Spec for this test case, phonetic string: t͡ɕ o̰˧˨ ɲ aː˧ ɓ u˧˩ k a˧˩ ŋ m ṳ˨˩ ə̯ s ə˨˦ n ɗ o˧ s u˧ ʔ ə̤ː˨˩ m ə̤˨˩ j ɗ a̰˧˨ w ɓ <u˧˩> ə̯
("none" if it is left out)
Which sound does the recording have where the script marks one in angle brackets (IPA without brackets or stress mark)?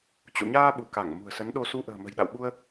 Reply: u˧